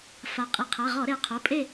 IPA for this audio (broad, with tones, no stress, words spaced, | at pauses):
fa˩˧ qʼi˩˧qʰa˩˧˩ ʁɔ˧˩˧ɾe˩˧qʰo˩˧˩ pʼe˥˨